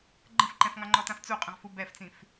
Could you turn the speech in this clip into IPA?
ɡ͡ǃə̃fǃɛ̃fŋɑŋ͡ǃɔ tãft͡suqʼə̃ʁ fubɛft͡sĩf

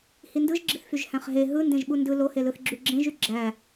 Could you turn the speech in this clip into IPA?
hindɯʒɡ͡ǁiθfyʒ hæ̃χɦe ɦɯ ndẽʒɓundɯ lohelɯθ ɡ͡ǁyɡ͡ǁẽʒy ɡ͡ǁæ

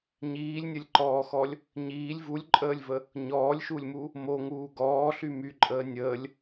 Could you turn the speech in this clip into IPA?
ɲiːlʲnʲəlʲǃɔːxɔlʲ | ɲiːlʲ vulʲǃʼəːlʲvə | ɲɔːlʲʃulʲmu | moŋuː ɡɔːɬy myǃʼəː nʲəːlʲ

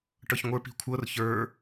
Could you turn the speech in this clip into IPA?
ʈɤçŋʷə˞p i̤kʷʰɤr çə˞

